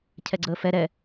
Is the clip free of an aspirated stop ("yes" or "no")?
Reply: no